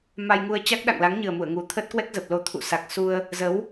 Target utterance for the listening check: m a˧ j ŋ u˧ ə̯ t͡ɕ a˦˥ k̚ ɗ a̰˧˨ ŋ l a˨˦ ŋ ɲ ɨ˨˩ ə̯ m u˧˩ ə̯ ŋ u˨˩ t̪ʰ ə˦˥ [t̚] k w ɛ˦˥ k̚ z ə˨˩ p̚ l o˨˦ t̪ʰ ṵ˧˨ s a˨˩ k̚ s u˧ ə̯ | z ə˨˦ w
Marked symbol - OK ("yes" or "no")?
yes